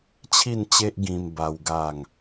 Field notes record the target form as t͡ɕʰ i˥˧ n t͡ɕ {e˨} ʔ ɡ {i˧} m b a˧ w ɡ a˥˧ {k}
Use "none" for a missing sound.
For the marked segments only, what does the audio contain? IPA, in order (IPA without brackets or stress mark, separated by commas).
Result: e˦, ĩ˧, ŋ